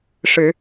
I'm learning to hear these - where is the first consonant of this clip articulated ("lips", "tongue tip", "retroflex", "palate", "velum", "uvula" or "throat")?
retroflex